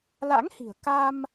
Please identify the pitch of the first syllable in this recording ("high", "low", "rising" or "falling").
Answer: rising